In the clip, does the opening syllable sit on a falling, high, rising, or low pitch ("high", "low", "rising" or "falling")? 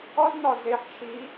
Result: high